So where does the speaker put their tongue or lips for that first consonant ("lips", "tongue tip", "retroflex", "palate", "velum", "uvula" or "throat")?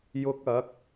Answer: palate